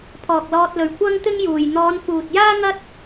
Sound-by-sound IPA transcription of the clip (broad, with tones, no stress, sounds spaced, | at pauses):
pʰ ɔː˨ k̚ l ɔː˧ t̚ l ɵ˨ ɥ kʷ ɐ˥ ŋ t̪ ɪ˥ ŋ j uː˨ j n̪ ɔː˨˧ n f uː˨ t̚ j aː˥ ŋ ɐ˥ t̚